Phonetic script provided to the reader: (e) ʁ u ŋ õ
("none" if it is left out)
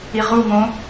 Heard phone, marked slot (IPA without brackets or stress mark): i